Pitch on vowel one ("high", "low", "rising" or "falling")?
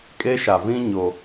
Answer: high